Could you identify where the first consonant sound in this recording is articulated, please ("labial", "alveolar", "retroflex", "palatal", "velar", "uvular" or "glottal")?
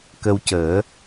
velar